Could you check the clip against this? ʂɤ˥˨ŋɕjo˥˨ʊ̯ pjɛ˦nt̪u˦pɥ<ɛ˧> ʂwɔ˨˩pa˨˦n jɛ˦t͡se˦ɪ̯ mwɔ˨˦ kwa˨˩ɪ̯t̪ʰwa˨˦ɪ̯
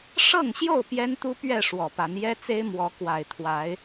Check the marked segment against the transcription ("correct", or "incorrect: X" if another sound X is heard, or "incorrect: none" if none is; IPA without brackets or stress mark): incorrect: ɛ˥˨